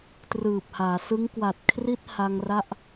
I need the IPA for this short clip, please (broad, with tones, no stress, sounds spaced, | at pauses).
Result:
t r ɯː˨˩ p̚ h aː˩˦ s ɯ˦˥ ŋ k w a˨˩ t̚ kʰ r i˦˥ t̚ h a˧ ŋ r a˦˥ ʔ